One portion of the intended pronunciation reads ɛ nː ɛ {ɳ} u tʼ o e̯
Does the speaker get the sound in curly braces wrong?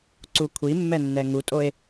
yes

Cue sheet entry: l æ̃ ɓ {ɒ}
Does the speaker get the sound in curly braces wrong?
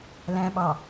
yes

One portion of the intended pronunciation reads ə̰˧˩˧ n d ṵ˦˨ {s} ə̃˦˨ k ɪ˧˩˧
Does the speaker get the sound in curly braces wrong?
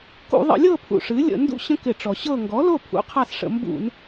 yes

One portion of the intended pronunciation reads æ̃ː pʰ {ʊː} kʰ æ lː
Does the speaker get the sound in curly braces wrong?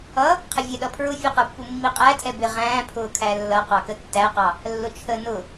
no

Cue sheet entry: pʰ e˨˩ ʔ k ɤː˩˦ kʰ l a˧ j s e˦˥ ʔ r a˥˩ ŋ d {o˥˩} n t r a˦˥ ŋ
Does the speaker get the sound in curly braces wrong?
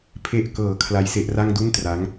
yes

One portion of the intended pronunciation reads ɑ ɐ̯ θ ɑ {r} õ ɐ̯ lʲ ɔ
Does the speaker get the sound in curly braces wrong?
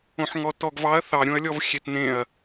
yes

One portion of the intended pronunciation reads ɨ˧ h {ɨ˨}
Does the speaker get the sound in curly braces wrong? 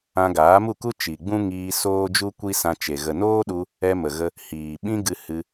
yes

